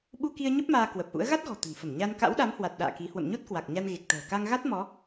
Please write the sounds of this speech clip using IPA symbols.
ɓ u˧ k i˧ ə̯ ɲ ə˦˥ p̚ m aː˧ k w ə˨˩ p̚ ʔ ṵ˧˥ ə̯ ɣ a˦˥ t̚ ɣ ɔ̤˨˩ t̪ ə̤˨˩ n f ə˧˩ m ɲ a˧ n k a̰˧˥ w ɗ a˨˦ m h w a˨˩ t̚ ɗ a̰ː˧˨ k i˨˦ h w ə̰˧˨ m ɲ o˦˥ t̚ k w a˨˩ k̚ ɲ a˧ n ɣ e˨˩ k̚ t̪ ə̤ː˨˩ k a˧ ŋ ɣ a˦˥ t̚ m ɔ˨˦

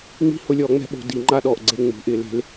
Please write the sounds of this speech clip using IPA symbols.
ŋ͡m i̤˦ h ʊ˨˩˦ lʲ ɔ˨˩˦ ŋ͡m ɛ̤˨˥ ɓ o̤˨˩˦ d i˨˩˦ ŋ͡ǃ a˥˨ ɗ ɔ˨ ʔ ɡ͡ǀ e˥˨ ŋ͡m ṳ˨˩˦ ʔ ɪ˨˩˦ l e̤˨˥ l

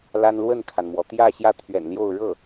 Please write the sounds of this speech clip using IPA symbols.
l a˥ n l w ə˥˩ n kʰ a˩ n m w ɔ˩ t̪ j ä˥˧ ɕ j ä˥˩ t̪ʰ ɥ ɛ̰˨˩ n l j o˥˧ ʊ̯ ɻ ɤ˥˩

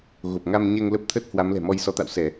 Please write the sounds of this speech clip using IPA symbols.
ɣ o˨˩ p̚ ŋ a˧ m ɲ ɛ˧ ŋ l ə˦˥ p̚ t̪ʰ ə˦˥ t̚ h w a˨˦ m l ɛ̤˨˩ m ɔ˧ j s ɔ˨˦ t̪ a̰˧˨ w s ɛ˧˩˨

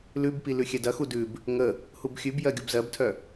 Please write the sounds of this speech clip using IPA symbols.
l ʉ b p i l ʉ xʲ ɛ d ɐ x u d ʉ b | ŋ ə | h u b xʲ ʉ b j ɜ ɡʲ u b z ɜ b tʰ œ

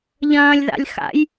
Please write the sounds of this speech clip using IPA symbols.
ʎ ɐ̃ː lʲ ð a̰ lʲ x a̰ j

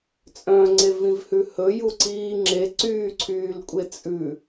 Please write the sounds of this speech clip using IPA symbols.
t͡sʼ œ̃ ŋ͡ǀ e v ĩ v h ʉ h ɵ j u ǀ iː ŋ͡ǁ e ǀ yː ǀʰ yː l kʷʼ e t͡sʼ ʉ

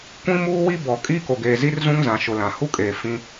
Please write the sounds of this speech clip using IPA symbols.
kʷ ĩ˦ m uː˦ w i˦ b ɔ˨ kʼ iː˦ k o˨ ɡ eː˨ z i˦ r z ũ˦ ŋ z ã˨ ʃ ʊ˨ l ã˨ h u˦ kʼ eː˨ f ĩ˦

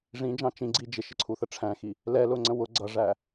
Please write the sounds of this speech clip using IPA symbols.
ʐ ĩ d͡ʒ ɑ̃ t͡ʃ ĩ ɡ͡ǀ i d͡ʒ ɪ ʃ ɪ ǀʰ u θ ə ʈ͡ʂʰ æ̃ x i | l ɛ l ʊ ŋ͡ǀ ə̃ w ʊ ɡ͡ǀ ʌ ʐ æ

